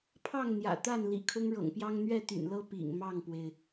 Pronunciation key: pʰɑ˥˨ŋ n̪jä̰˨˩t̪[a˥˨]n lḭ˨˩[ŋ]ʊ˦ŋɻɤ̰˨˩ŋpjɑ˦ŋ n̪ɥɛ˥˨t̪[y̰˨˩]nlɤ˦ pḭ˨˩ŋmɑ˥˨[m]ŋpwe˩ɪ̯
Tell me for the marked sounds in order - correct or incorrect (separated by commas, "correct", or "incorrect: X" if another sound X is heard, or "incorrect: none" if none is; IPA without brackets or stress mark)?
correct, incorrect: kʰ, correct, incorrect: none